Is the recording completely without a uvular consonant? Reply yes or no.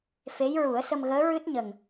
yes